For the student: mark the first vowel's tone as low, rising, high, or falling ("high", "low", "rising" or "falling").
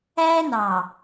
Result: high